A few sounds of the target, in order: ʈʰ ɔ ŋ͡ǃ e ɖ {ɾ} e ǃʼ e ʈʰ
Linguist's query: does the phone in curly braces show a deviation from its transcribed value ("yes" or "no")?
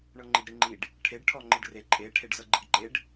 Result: yes